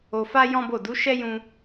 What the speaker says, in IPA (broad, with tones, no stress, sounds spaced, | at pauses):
o˧ f a˦ j ɔ̃˦ b o˦˨ d u˨˦ ʃ ɛ˦ j ũ˧